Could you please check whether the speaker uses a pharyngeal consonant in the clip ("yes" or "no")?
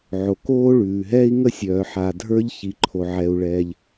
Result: yes